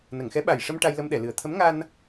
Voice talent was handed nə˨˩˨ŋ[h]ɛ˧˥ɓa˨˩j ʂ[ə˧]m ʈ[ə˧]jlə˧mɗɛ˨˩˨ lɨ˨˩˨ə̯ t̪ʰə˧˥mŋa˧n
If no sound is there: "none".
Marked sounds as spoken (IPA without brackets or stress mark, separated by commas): x, ə˧, a˧